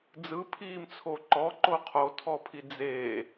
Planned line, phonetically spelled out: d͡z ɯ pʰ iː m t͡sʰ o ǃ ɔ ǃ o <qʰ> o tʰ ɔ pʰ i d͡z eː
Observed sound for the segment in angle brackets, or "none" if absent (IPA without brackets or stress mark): qʰ